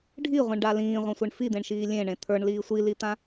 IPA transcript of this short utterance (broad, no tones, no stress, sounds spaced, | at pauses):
ɖʱ i ʁʷ ĩ ɳ ɖ a l ĩː ʁʷ ã sʷ e ɳ f i d̪ ẽ ɳ ʃ iː lʲ ẽ ɳ ẽ t̪ʰ ə˞ ɳ l iː sʷ i l i t̪ ã